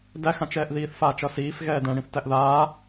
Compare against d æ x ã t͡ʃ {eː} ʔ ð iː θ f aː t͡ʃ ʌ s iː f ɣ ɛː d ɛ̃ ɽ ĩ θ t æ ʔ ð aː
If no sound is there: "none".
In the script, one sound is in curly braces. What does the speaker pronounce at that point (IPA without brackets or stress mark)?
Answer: ɛː